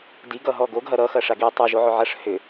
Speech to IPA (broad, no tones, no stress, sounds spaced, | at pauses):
d i ɡ ʌ ɦ ɔ ɡ o ɡ ɦ ɐ ɾ ʌ x ɐ ʂ a ɡ i tˤ u ʒ o ʕ ʏ ʕ ɐ ʂ h ʏ